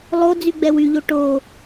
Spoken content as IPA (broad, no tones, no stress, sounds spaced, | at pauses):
lˠ o d͡z y ɡ͡b ɛ w y ʎ o ʈ o